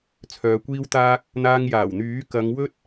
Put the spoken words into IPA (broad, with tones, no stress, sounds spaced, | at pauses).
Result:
t͡sʰ œː˨ kʷ iː˥ w t̪ aː˧ k̚ | n̪ aː˧ ŋ j aː˨˩ w n̪ yː˨˥ k ɐ˨˧ ŋ w ɵ˥ t̚